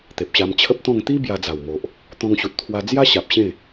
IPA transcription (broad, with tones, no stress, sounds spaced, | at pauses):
t̪ e˨ p̚ ɕ a˧ m t͡ɕʰ ə˦ p̚ t̪ ɔ̃˥˧ ŋ t̪ i˦ b j a˧ d͡z a˨˩ w m o˨ ʔ | t̪ ɔ̃˧ ŋ ɕ u˨ t̚ t̪ʰ w a˧ d͡z j a˦ ɕ a˨ p̚ ɕ ẽ˥˧